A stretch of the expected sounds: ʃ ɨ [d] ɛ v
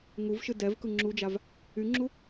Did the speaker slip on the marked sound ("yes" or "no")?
no